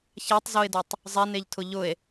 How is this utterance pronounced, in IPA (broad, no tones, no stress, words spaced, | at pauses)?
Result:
çatˤzoe̯dotˤ | zˤɛneʎtʰʊ ʎʊe̯